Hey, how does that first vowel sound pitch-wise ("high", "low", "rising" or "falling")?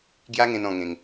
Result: high